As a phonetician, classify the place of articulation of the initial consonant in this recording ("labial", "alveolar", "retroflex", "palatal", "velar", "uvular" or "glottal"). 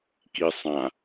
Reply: velar